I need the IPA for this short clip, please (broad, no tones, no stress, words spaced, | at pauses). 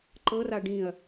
ǃɤra ɖĩɐ̯